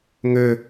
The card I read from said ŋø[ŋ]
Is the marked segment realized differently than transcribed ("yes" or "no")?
yes